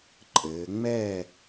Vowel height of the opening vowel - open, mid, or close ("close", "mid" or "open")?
mid